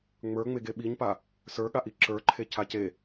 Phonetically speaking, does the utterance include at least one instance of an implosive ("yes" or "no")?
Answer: yes